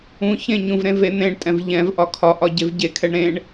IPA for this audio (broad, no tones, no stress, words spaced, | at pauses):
ũ çẽɲũvɾẽ ven̪ẽɳtʼɛ̃v ʎɛ̃vʔɒ kʰɒʔɒ ɟevɟekʰɛɳ ɾẽɳ